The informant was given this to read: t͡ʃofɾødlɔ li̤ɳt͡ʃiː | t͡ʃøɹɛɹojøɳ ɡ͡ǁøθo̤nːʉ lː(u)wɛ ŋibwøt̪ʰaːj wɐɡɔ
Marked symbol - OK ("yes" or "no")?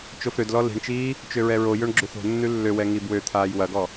no